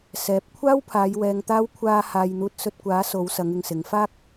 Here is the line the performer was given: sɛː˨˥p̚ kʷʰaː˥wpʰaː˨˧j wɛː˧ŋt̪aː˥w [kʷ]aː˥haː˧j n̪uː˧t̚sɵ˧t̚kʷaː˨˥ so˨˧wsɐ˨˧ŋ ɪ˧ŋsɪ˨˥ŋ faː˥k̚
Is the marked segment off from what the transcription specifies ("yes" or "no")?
yes